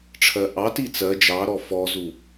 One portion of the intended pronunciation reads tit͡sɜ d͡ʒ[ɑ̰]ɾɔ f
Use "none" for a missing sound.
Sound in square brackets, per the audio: ɑ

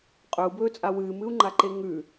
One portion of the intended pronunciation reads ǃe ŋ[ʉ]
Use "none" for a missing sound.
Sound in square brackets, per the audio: ʉ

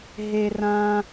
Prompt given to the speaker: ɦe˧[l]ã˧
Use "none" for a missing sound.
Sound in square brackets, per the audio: r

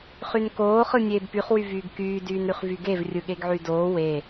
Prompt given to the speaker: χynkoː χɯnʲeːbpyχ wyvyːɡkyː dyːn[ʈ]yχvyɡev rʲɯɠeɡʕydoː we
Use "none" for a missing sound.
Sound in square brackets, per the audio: ɾ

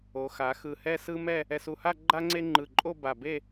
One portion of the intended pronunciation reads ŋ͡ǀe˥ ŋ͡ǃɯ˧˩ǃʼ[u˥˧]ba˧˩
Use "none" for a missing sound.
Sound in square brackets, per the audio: o˥˧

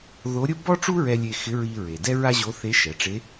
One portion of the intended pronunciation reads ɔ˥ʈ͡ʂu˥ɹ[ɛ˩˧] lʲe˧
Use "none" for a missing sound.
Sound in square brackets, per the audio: ɛ˧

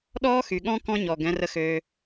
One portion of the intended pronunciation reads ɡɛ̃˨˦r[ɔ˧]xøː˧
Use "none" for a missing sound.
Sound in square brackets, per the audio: ə˧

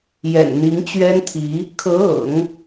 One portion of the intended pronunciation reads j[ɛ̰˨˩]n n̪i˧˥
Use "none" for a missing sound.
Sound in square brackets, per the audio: ɛ̰˨˩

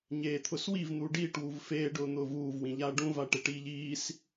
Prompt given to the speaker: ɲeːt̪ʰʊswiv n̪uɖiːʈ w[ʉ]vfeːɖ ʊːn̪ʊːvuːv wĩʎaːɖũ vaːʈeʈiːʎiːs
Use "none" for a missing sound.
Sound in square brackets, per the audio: u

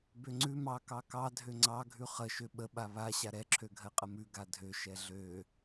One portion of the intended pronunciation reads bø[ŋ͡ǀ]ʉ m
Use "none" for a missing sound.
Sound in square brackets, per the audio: ŋ͡ǀ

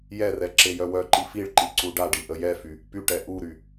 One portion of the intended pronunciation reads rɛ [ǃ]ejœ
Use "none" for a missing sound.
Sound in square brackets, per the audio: ǁ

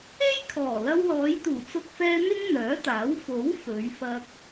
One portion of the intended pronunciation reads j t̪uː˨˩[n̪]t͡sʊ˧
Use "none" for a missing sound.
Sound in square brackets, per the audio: none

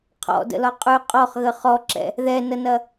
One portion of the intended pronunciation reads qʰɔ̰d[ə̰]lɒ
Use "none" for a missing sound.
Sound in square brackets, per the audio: ə̰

